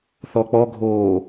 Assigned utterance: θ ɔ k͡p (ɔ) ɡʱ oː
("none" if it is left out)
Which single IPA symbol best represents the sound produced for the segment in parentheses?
ɔ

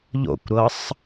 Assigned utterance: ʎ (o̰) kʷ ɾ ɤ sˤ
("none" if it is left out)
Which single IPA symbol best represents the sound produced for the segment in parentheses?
o̰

